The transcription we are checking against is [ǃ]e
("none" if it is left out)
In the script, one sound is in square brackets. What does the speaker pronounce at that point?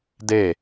d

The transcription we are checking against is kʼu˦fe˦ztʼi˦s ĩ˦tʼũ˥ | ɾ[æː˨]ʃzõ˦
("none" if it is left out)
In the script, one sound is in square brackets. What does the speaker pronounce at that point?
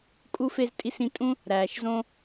æː˨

